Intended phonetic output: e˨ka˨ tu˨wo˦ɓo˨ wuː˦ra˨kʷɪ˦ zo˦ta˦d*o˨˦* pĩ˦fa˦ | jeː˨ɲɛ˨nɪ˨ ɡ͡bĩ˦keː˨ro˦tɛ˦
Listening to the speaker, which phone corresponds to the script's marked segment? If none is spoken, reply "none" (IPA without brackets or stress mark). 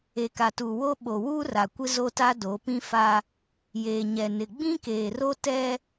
o˨˦